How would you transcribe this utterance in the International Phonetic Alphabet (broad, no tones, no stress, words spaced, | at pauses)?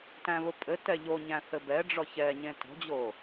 tæ̃βʊpʼɘtɛ ʎoɲæ̃ θɘbɛɖ͡ʐɔ çɛɲẽ tɔ̤d͡ʑo